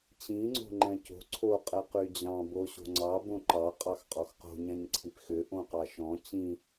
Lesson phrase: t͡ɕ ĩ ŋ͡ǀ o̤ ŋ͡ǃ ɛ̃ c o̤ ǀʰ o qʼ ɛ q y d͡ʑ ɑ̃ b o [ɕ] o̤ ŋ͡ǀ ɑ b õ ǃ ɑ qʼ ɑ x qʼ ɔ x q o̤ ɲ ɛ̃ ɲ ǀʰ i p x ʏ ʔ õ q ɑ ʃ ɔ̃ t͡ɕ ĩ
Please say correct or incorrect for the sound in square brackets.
correct